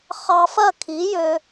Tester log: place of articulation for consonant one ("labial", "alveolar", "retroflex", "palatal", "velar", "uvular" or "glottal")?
uvular